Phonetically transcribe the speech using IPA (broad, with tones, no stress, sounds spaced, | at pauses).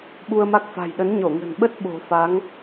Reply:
ɓ u˧ ə̯ m a˦˥ k̚ f a̤˨˩ j ɗ ə˨˦ n ɲ o˧˩ ŋ ə̤˨˩ n ɓ ə˦˥ t̚ ɓ o̤˨˩ f a˨˦ ŋ